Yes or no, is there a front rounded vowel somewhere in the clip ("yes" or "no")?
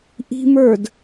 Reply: no